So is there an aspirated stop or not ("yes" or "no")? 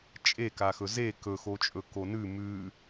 no